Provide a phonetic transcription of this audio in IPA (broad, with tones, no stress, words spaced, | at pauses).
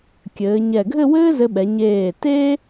kʲɘː˩˧ɲɛ˧˩ ɡʱɘ˥˧wɘː˥zɘ˧ɓɛ˩˧ ɲeː˧˩ teː˥